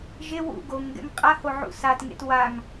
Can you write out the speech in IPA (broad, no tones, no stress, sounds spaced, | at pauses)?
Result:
ʒ e w ṵ ɡ o ŋ ɡ ɛ̰ ŋ qʼ a h o ʕ ṵ s a t ŋ ḛ t w a ŋ